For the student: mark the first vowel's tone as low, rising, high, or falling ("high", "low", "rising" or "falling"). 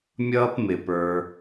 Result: high